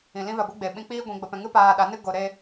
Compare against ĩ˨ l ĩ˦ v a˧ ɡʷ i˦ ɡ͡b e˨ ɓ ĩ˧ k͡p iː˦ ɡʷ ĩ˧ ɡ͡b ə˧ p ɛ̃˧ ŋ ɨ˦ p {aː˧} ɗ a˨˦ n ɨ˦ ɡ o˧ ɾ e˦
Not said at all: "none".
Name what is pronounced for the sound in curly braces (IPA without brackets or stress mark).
aː˧